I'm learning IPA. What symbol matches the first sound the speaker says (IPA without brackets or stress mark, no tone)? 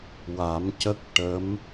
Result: w